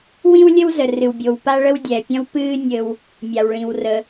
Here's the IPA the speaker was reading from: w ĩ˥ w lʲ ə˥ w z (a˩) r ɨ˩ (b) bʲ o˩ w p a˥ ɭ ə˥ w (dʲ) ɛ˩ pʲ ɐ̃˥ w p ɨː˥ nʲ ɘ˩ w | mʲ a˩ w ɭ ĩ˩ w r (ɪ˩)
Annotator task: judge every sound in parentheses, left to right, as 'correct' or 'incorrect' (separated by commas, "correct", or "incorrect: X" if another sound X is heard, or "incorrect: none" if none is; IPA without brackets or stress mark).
incorrect: ə˩, incorrect: w, correct, incorrect: ə˩